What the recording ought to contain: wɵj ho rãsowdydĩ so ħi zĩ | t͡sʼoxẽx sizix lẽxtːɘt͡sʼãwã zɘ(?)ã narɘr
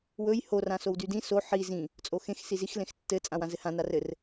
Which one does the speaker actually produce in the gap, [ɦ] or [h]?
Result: h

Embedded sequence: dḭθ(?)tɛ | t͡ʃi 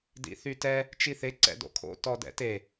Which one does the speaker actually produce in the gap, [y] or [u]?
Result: y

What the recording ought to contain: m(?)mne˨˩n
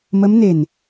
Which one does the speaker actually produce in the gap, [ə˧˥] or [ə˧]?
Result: ə˧˥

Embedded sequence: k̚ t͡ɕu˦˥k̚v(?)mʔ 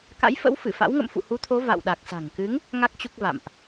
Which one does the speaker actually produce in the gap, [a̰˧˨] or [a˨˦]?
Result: a̰˧˨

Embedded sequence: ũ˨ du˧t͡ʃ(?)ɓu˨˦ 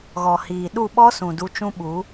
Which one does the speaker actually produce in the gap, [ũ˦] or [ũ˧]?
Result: ũ˦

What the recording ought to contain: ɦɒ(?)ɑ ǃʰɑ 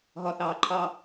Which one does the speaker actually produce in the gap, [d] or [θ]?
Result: θ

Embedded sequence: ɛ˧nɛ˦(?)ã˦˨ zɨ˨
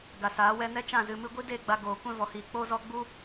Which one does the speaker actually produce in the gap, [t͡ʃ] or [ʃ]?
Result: t͡ʃ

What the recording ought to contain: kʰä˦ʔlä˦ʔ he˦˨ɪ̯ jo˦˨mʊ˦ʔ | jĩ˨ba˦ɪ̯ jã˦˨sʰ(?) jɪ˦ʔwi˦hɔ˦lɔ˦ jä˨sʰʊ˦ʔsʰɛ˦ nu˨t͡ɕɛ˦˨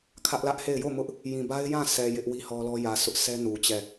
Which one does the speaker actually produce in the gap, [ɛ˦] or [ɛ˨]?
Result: ɛ˨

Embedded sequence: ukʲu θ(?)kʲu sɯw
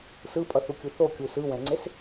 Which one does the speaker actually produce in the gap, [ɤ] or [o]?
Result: o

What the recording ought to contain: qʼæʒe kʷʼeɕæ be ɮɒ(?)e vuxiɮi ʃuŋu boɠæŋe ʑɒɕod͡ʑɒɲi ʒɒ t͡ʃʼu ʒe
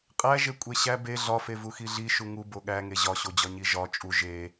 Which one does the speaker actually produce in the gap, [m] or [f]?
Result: f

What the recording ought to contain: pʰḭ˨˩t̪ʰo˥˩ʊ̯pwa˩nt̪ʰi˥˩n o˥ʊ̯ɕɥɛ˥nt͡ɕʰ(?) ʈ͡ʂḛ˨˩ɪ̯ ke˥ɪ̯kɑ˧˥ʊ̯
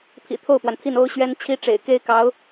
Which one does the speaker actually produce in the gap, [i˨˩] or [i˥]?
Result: i˥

